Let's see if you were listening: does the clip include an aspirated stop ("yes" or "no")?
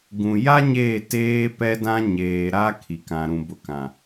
yes